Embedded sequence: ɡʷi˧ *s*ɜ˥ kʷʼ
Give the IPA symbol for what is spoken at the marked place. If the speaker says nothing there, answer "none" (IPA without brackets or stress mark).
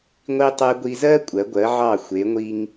z